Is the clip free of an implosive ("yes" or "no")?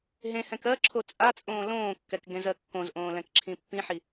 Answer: yes